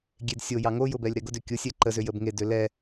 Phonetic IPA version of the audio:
ɡʲedsʲojɑ ŋojʊ bɛlʲɾɛɡʊdʏ kʲʊsʲɛ ǃəzʏ jəbŋedʏ lɛ

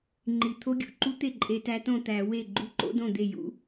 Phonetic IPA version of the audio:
ŋ͡ǃi˨˩ t̪ʰo˦˥ɡʲṵ˥˩ǃu˦˥ t̪e˥˩ǃʼe˨˦tæ˨˦tõ˥˩ t̪æ˧˩˧ we˥˩ ɡ͡ǃu˦˥ǃo̰˦˥dõ˥˩d̪e˥˩ jṵ˦˥

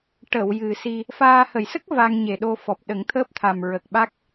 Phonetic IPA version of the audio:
ʈə˨˩˨w jɨ˨˩si˧ | faː˧ hə˨˩˨jsə˦˥k̚ va˧ŋɲe˨˩ɗo˧ fɔ˨˩p̚ɗə˨˩˦ŋt̪ʰəː˦˥p̚t̪ʰa˨˩m ɹə˨˩k̚ɓa˦˥k̚

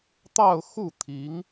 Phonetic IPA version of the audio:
t̪ɑ˥˧ʊ̯ xu˥˩ t̪ʰi˧˥ŋ

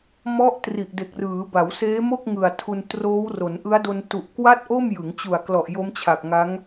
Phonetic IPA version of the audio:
mɔ˦˥ʔ tri˨˩ʔde˨˩k̚rɯː˩˦ ba˩˦wseː˦˥mo˥˩k̚ ŋɯ˨˩a̯tʰu˧n troː˦˥wro˩˦nʔɯ˦˥a̯do˧n tu˨˩ʔkwa˥˩t̚ʔo˥˩m jɯ˩˦ŋt͡ɕu˨˩a̯klɔ˨˩ʔ jo˦˥mt͡ɕʰa˨˩k̚ŋa˦˥ŋ

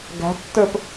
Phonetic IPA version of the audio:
ɡæ̤tːə˞p

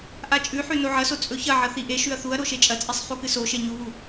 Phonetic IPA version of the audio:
ʔat͡ʃʼʉħʉ noʕɐso t͡sʼɵçɐʕɐ θiʔeʃʉɐ̯ θuɐ̯ ɾoʃet͡ʃʼɐt͡sʼisˤ χukɨsoʃe ɲuβu

